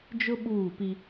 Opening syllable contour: high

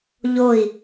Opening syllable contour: falling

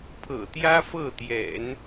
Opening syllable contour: low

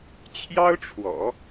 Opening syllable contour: high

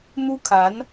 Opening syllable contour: high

